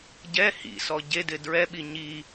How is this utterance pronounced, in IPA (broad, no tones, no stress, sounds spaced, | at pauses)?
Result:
ɟ ɛ h ḭ s ɔ ɟ e d ɪ d ɹ ɛ ɓ i ɲ i